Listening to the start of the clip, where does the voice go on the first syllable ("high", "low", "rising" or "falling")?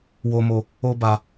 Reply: low